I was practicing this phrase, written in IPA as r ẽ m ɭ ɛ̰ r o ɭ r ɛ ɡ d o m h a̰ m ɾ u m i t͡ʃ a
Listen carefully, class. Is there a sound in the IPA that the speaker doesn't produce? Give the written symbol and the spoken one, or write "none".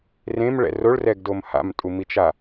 ɾ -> tʼ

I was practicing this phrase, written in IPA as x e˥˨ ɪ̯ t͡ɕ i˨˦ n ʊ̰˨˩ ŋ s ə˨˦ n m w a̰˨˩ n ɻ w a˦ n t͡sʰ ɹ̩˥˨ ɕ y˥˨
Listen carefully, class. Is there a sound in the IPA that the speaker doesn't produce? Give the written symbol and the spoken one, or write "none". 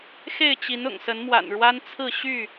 none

